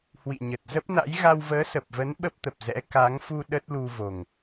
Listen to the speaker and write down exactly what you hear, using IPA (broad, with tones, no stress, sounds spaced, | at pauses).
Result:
h w ḭ˧˨ ɲ ə˨˩ t̚ z ə˦˥ p̚ n a̰˧˥ j ɣ a˧ w v əː˨˦ s ə˨˩ p̚ v ə˨˦ n ɓ ə˦˥ p̚ t̪ ə˨˩ p̚ z ɛ̰˧˥ k a˨˦ ŋ f u˧ ɗ ə˦˥ t̚ l u˧ v o˨˩ ŋ